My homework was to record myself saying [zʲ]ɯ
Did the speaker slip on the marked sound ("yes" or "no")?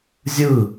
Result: no